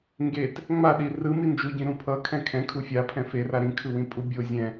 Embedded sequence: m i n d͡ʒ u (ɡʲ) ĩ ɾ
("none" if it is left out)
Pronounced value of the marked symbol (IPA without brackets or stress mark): ɟ